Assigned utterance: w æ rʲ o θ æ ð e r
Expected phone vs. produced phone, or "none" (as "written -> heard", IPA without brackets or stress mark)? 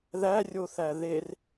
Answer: w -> ð